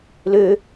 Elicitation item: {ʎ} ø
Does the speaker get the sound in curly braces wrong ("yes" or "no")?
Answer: yes